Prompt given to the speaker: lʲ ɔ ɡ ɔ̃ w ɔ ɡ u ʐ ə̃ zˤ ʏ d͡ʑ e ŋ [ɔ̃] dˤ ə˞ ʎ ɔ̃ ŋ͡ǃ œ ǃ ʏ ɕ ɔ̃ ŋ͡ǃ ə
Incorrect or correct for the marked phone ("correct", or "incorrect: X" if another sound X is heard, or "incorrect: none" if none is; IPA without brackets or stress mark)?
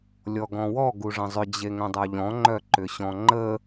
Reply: incorrect: ə̃